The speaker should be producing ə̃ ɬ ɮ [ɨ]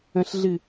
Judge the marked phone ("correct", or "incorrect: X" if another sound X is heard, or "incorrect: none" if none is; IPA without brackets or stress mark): correct